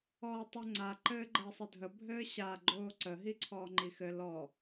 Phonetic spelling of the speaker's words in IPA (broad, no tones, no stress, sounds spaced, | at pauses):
ɔː tˤ ə ŋ͡ǀ a ǃ ɘː ɡ͡ǃ əː sˤ ə dʱ ə bʱ ɘː ɕ a ɡ͡ǃ oː ǀ ə ɦ i ǀʰ ɔː ŋ͡ǃ i x ɘ l ɔ